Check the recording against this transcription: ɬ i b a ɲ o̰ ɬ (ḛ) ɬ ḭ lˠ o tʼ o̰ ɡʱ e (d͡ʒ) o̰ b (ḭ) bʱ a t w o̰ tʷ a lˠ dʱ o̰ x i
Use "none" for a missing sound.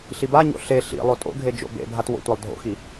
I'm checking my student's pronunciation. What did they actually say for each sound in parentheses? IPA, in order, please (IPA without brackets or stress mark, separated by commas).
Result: e, d͡ʒ, ḛ